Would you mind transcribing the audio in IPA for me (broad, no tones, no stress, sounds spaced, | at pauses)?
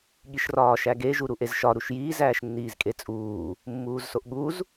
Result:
ɠ i ʃ r ɒː ʃ æ ɡ e ʒ u ɾ u ʔ e z ʃ ɒ ɾ u ʃ j iː z æː ʃ nː iː z kʼ e t͡sʼ uː | mː uː z s o ʔ ɠ u z